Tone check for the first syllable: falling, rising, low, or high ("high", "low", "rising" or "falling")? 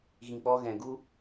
low